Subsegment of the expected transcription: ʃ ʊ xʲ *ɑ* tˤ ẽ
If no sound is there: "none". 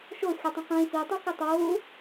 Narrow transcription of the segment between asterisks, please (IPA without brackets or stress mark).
ə